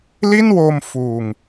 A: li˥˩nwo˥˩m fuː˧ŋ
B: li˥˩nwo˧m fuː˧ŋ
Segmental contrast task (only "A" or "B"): B